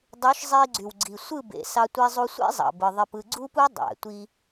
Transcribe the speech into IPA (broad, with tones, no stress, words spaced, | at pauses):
dˤu˨˦ʃzˤi˧ ɡ͡ǀy˨wɡ͡ǀi˨ sʷɯ˦˨bḛ˨sɑ˧tʷi˧ zˤu˧sʷḛ˦zˤɑ̰˨ bɯ˨ðˤe˧pɯ˧ ɡ͡ǀu˦pu˦ dˤæ̰˨tʷi˧